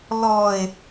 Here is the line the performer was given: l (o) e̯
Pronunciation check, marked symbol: incorrect: ɔ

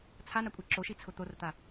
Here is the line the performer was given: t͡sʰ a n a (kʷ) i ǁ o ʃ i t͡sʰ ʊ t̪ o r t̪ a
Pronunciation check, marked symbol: incorrect: kʷʼ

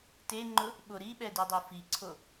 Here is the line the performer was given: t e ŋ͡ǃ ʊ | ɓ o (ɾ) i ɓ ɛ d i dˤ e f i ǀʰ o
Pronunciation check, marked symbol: correct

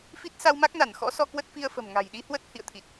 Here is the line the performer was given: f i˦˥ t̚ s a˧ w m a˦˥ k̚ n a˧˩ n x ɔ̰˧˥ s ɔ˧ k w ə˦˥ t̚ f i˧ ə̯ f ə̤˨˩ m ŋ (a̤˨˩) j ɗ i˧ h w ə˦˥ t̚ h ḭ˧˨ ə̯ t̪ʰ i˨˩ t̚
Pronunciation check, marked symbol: correct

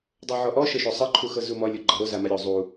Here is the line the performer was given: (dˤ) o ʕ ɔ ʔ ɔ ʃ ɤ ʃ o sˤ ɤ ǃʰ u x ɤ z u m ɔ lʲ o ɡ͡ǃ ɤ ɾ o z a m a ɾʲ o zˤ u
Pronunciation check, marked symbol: correct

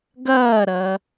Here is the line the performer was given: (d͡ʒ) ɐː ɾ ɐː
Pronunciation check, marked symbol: incorrect: ɡ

